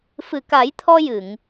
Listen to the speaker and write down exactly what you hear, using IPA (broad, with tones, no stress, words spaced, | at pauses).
fɨ˨˩ka˨˩˦jt̪ʰɔ˧ jɨ˨˩˨ŋ